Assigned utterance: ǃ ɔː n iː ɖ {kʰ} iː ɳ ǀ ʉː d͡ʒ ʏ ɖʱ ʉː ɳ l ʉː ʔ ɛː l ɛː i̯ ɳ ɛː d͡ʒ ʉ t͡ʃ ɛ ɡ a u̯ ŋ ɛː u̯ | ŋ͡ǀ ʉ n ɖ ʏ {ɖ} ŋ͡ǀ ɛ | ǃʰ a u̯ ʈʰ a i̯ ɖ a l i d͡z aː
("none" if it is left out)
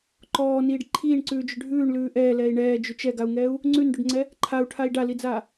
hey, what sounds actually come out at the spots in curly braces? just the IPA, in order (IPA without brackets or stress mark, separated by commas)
ǃʰ, ɖ